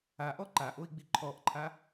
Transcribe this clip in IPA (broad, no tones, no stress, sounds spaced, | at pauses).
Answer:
a ʔ ɔ ǃ a ʔ o i̯ ɡ͡b i ǃʰ ɔ ʔ ǃʰ a